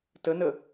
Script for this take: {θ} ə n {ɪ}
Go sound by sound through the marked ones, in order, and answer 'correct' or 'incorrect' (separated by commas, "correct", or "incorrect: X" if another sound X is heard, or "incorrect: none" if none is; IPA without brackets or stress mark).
incorrect: t, incorrect: ə